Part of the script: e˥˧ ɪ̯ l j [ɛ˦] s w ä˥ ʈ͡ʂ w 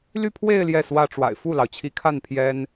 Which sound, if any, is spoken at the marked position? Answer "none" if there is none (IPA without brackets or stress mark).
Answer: ɛ˥˩